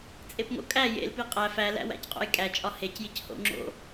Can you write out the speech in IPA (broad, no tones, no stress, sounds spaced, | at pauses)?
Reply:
t͡sʼ e p ŋ o̰ kʼ æ j ḛ l p i qʼ æ f æ l æ̰ w æ̰ c qʼ o̰ j kʼ æ t͡ʃʼ ɒ h e c j i c h o̰ ŋ͡ǁ o̰